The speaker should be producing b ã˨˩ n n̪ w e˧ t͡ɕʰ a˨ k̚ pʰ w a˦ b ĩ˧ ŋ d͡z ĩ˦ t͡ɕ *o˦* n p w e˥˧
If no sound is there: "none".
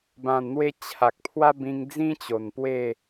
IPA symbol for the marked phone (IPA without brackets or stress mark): o˨˩